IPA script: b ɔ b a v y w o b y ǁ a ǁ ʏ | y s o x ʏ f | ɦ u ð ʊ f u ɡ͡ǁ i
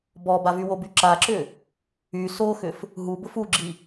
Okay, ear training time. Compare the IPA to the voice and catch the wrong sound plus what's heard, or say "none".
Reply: ð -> b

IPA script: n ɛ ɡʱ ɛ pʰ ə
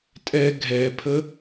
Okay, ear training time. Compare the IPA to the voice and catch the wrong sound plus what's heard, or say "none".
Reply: n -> tʼ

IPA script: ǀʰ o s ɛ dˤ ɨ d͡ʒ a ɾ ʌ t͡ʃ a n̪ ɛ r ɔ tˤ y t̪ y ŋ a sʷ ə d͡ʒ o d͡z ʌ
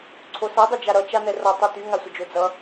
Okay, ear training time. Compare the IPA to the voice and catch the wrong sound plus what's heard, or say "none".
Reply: none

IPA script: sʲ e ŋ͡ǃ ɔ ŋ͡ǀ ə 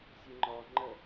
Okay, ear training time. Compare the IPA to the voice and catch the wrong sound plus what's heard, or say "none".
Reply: ŋ͡ǀ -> ŋ͡ǃ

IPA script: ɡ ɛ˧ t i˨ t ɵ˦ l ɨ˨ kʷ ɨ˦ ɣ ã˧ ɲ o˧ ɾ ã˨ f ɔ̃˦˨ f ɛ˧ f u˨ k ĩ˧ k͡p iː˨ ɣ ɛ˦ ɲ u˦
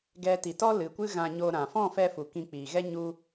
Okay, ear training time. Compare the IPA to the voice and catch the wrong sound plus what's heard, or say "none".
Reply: ɵ˦ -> ɔ˦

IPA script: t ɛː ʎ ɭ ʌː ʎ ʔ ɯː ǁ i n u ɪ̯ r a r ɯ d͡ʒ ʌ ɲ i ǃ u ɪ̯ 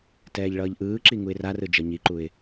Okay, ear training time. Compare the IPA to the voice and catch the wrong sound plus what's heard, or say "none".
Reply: n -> ŋ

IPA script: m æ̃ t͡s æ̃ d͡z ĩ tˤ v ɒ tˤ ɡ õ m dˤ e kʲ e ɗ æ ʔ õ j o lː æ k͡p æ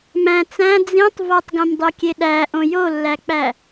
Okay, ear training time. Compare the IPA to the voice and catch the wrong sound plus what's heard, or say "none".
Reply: none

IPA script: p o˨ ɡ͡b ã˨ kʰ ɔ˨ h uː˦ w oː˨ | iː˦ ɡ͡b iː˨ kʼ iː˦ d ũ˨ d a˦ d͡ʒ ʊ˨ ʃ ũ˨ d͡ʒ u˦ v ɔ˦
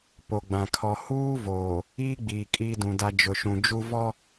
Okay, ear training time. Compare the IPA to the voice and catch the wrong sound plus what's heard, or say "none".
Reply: w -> v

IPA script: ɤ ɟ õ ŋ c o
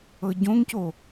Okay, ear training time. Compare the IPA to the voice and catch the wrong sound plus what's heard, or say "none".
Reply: none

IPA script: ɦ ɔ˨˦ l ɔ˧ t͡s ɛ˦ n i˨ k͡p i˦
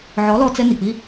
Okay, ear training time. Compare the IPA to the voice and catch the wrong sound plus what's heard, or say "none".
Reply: ɦ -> ʕ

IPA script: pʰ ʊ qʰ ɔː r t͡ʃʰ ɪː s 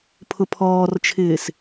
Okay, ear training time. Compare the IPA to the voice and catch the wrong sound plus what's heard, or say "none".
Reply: qʰ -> pʰ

